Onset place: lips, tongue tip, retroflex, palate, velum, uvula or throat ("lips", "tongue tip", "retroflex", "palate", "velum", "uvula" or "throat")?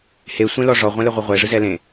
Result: throat